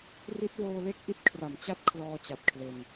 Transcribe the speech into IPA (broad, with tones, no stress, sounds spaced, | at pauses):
r i˦˥ t̚ w oː˧ l e˥˩ k̚ ʔ i˦˥ t̚ kʰ r a˩˦ m t͡ɕ a˦˥ t̚ kʰ l ɔː˧ t͡ɕ a˨˩ t̚ kʰ l e˧ n